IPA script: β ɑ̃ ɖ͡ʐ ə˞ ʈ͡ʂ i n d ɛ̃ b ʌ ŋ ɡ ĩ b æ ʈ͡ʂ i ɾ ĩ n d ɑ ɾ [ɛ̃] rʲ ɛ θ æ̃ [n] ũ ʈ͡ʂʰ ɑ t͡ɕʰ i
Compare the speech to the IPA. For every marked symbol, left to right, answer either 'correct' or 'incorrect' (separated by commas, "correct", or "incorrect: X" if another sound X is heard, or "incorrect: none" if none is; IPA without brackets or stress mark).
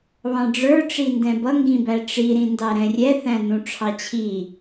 correct, correct